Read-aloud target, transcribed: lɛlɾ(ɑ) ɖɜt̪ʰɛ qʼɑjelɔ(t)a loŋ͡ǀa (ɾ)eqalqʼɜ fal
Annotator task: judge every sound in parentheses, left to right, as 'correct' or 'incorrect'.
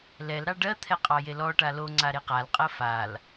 correct, incorrect, correct

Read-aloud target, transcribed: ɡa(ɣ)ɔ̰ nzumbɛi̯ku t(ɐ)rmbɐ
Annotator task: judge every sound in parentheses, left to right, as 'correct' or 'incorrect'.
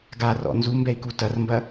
incorrect, correct

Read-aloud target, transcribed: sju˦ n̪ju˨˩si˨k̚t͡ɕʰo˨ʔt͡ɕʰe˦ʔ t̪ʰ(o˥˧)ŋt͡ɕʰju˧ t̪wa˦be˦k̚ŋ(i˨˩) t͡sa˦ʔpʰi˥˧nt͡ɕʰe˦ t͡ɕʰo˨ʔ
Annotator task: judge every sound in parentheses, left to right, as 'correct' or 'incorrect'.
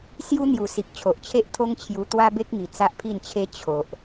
incorrect, correct

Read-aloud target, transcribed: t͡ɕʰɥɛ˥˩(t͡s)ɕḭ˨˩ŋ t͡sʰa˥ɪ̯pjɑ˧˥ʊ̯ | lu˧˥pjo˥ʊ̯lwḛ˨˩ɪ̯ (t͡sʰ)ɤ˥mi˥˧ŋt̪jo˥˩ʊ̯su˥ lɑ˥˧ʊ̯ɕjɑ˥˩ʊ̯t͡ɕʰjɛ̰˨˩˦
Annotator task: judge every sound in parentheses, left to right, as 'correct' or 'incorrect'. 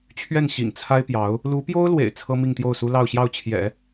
incorrect, correct

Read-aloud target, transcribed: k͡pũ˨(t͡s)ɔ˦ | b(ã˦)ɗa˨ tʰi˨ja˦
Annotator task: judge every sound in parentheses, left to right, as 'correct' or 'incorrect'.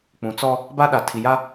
correct, incorrect

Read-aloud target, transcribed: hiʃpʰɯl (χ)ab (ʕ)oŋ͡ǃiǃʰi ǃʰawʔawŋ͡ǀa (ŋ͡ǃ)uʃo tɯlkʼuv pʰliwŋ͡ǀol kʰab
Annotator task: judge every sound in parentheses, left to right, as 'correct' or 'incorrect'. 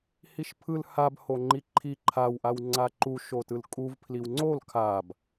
incorrect, incorrect, incorrect

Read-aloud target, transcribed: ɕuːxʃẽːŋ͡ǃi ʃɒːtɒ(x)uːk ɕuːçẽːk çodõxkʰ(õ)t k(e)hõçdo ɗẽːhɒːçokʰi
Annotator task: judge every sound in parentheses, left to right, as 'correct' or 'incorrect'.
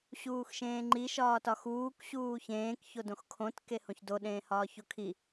correct, correct, correct

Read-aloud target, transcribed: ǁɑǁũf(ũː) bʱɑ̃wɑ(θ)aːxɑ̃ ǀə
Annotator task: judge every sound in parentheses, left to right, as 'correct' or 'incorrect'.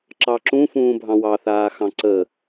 correct, correct

